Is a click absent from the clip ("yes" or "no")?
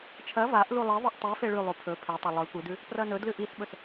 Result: yes